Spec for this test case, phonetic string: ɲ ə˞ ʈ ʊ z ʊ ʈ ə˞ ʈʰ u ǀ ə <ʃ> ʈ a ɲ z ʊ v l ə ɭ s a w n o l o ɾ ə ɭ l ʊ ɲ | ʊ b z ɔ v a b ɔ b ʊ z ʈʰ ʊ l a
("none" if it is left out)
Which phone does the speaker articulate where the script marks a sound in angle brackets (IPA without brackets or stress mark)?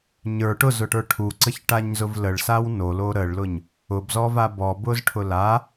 ç